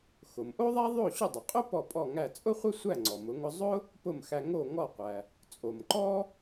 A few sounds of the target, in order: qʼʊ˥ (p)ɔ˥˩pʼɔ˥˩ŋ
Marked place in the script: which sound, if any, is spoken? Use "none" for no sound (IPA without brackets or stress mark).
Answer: p